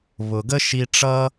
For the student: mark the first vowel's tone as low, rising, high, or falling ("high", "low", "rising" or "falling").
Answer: low